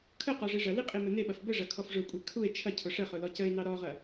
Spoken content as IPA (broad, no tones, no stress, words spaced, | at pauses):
kʰə qɔʐiʐɐli qʼimɘneɓɐf bɘʐɐ kʰɔfʐʊkʷʼe kʰue̯ t͡ʃʰɐcʰʊ ʂəχʊ lɔcəe̯nɑ ɾɔʁɐ